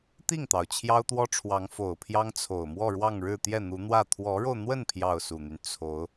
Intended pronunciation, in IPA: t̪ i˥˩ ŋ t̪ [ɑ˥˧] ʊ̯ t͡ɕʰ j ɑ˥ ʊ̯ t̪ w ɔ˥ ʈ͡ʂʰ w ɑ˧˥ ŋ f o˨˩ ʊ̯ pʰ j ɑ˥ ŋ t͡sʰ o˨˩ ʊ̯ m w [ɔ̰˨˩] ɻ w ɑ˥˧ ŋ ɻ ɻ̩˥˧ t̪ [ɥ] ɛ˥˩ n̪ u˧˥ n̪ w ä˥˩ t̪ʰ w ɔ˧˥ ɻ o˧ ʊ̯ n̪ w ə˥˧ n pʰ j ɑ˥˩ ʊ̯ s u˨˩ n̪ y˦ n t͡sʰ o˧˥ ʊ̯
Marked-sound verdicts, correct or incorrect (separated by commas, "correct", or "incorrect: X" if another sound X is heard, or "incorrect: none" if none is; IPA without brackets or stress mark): incorrect: ɑ˩, incorrect: ɔ˥˧, incorrect: j